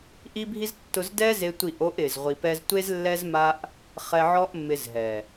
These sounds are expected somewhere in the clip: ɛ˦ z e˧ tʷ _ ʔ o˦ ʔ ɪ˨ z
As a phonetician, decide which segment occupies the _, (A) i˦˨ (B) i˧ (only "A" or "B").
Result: A